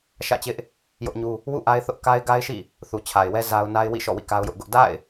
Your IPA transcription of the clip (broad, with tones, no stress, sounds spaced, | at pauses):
ʃ ä̰˦˨ t͡ɕ ɪ˦ ʔ | j ʊ˦ ʔ ɲ u˦ | w ṵ˦˨ ʔ a˦ ɪ̯ θ ʊ˦ ʔ k a˦ ɪ̯ ɡ a˦ ɪ̯ ʃ ḭ˦˨ | θ u˨ t͡ɕʰ a˨ ɪ̯ w ɛ˦ z a˦ ʊ̯ n a˦ ɪ̯ w ḭ˦˨ ʃ ɔ̰˦˨ w ḭ˦˨ k a˦ ʊ̯ j ʊ˦ ʔ ɡ ʊ˦ ʔ d a̰˦˨ ɪ̯